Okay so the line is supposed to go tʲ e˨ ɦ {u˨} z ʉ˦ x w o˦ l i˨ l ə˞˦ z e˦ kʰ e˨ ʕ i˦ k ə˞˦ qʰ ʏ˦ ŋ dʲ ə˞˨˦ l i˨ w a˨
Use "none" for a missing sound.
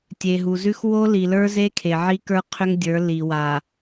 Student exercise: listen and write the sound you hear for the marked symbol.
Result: u˨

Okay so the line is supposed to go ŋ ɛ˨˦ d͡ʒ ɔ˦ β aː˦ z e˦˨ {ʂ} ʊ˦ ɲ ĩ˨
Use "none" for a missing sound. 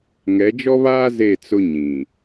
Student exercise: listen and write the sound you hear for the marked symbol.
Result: t͡s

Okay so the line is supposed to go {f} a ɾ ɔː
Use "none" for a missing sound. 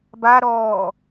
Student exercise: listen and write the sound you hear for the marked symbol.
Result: b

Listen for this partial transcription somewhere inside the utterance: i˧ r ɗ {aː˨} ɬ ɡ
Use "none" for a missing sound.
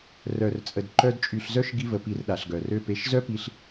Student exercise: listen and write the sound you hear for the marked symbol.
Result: a˨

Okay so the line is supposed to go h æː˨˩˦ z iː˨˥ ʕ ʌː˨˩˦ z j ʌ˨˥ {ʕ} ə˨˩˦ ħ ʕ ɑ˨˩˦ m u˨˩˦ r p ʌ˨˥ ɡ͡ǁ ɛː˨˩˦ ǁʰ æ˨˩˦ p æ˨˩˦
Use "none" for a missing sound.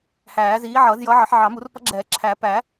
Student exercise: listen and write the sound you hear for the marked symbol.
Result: ʕ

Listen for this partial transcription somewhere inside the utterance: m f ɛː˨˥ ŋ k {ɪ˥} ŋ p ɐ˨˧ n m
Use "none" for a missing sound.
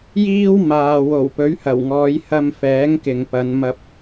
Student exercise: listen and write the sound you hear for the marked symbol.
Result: ɪ˨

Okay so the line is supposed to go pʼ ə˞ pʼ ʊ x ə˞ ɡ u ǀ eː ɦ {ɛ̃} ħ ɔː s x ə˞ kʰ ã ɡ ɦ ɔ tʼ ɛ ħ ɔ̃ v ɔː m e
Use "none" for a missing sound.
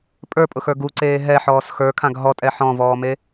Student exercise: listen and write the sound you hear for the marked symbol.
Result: ɛ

